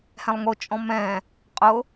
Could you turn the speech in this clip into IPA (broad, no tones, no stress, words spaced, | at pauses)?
hɛ̃lˠŋʊt͡ʃʼɔ̃ mɛ̃ | qʼʊ